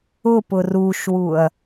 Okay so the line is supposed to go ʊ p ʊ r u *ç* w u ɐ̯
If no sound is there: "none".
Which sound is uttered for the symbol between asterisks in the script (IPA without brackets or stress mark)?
ʃ